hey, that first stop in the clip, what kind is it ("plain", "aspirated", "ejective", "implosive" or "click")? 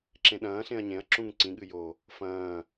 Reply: click